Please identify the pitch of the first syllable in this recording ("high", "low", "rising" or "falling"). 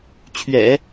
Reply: low